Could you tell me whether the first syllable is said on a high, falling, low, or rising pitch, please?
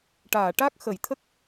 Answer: low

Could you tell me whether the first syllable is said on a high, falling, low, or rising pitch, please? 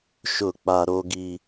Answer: falling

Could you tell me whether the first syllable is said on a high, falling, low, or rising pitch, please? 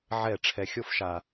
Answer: falling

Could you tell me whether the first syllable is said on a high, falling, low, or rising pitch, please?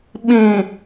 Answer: low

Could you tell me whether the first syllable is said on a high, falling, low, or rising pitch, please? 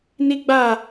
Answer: high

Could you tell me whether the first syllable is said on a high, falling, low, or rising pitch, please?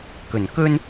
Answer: low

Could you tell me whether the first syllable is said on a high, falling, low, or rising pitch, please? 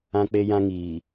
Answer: high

